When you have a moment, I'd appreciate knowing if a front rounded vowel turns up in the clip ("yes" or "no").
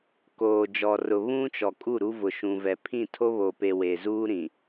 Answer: no